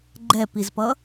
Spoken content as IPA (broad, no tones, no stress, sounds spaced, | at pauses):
ɡ͡ǃ ɛ p i z p ʌ